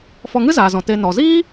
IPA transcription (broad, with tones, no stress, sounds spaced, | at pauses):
f ɔ˧ ŋ ɨ˦ z aː˨ z ɔ̃˨ t e˧ n ɔ˨ z iː˦